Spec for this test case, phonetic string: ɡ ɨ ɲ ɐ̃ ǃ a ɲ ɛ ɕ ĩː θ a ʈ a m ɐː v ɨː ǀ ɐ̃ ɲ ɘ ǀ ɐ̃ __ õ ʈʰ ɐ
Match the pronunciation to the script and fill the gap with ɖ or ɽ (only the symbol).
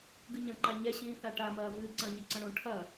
ɽ